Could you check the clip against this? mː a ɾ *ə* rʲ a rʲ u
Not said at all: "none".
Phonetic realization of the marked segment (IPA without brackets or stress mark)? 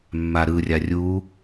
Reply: ɯ